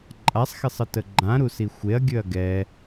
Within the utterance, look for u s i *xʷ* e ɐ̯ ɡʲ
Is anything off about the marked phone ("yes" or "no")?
no